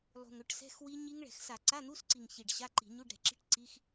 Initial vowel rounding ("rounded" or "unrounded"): rounded